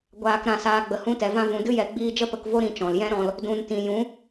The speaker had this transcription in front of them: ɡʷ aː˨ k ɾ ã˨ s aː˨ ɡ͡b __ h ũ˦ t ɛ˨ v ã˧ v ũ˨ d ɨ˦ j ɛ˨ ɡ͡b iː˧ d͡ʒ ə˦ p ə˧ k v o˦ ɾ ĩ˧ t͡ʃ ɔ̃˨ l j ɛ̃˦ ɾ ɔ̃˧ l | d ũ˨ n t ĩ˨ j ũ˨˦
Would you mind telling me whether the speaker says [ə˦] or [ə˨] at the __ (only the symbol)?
ə˨